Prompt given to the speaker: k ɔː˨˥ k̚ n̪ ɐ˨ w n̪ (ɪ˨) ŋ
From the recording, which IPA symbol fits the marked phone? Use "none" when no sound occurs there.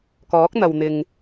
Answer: ɪ˨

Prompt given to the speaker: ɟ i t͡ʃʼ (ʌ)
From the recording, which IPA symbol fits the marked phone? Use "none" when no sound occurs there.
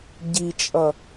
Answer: ʌ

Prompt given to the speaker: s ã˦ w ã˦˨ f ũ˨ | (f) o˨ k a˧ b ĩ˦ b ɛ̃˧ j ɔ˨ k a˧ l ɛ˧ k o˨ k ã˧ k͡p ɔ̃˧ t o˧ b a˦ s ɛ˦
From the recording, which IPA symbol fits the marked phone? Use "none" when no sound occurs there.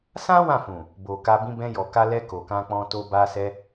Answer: b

